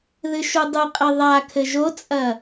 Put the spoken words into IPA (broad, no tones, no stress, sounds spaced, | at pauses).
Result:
ð ɨ ʃ u dˤ ɨ qʼ ɘ ðˤ a kʰ ɘ ʒ o t͡sʼ ɐ